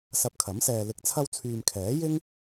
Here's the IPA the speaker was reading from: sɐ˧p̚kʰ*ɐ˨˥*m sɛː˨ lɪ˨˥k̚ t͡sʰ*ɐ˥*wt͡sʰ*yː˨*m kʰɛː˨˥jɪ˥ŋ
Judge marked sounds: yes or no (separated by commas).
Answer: yes, no, yes